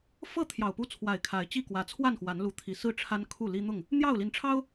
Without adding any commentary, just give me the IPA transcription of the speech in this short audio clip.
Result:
f ɤ˥˨ t̪ʰ j ɑ˨˩ ʊ̯ p u˦ t͡sʰ w a˨˩ ɪ̯ kʰ a˨˦ ɪ̯ t͡ɕ i˥˨ k w ä˨˦ t͡sʰ w a˥˨ n x w a˨˦ n l u˨˦ t̪ʰ i˨˩ s ɹ̩˥˨ ʈ͡ʂʰ a˦ n kʰ u˥˨ l i˦ n̪ ʊ˥˨ ŋ | n̪ j ɑ˥˨ ʊ̯ l i˨˦ n ʈ͡ʂʰ ɑ˦ ʊ̯

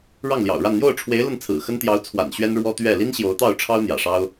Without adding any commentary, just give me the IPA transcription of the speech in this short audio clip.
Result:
ɻ ɑ˥˩ ŋ l j ɑ̰˨˩ ʊ̯ ɻ a˥˧ n n̪ j o˥˩ ʊ̯ ʈ͡ʂʰ w e˧˥ ɪ̯ l ə˥˩ n t͡sʰ ɹ̩˨˩ x ə˥ n t̪ j ɑ˧˥ ʊ̯ t͡sʰ w a̰˨˩ n ɕ ɥ ɛ˥ n ɻ w ɔ˥ t̪ ɥ ɛ˥˩ l i˥ n ɕ j o˧˥ ʊ̯ t̪ ɑ˥˩ ʊ̯ ʈ͡ʂʰ ɑ˥ ʊ̯ n̪ j ä̰˨˩ ʂ ɑ˥ ʊ̯

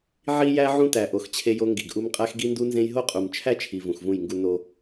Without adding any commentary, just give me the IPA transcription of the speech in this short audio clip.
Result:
ʕ i˦ j æ˦ ʕ ũ˦ t æ˨ ʔ o˨ x t͡ɕʰ e˦ j o˦ ŋ ɡ i˨ ɡ ʔ u˦ m qʼ æ˦ x ɡ i˦ n d u˦ n z ẽ˦ j ɦ o˦ qʼ u˨ m t͡ʃʰ æ˦ t͡ʃʰ i˨ v ũ˨ x v ũ˦˨ j ŋ ɡ u˦ n o˦

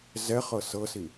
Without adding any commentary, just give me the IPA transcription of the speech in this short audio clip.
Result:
z ɛ χ ɤ s ɤ s i

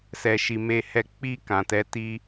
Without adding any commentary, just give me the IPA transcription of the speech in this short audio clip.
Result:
s ɛ˨ ʃ i˨ m e˧ h ɛ˧ k͡p i˧ k ã˨ t ɛ˨˦ t i˦

